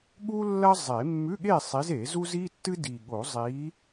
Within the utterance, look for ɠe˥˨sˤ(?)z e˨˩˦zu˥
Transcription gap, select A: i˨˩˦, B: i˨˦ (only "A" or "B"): B